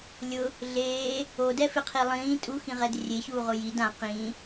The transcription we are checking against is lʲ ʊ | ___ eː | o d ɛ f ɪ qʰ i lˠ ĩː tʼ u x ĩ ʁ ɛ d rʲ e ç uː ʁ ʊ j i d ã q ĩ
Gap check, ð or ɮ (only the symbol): ɮ